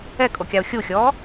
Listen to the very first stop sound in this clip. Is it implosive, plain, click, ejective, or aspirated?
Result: ejective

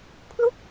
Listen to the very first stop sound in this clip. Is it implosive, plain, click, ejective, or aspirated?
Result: aspirated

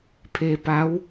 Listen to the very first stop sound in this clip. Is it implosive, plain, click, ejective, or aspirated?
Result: aspirated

